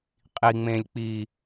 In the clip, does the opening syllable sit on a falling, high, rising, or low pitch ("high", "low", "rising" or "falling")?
low